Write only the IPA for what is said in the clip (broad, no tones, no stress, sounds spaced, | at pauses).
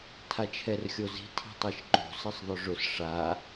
tʰ a t͡ʃʰ ɛ r xʲ o z i̤ tʰ i̤ tˤ i ʃ ǃ o̤ s ɪ sˤ ðˤ ʊ ʐ ʊ s ʂ a